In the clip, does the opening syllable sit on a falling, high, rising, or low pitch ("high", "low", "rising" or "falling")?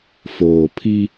low